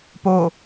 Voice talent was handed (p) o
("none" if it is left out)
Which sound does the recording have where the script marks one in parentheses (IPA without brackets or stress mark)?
p